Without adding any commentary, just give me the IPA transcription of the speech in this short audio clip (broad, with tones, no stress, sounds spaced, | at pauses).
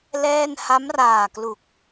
l ɛː˥˩ n h a˦˥ m r aː˨˩ k l u˨˩ k̚